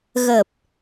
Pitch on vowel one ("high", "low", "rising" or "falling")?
low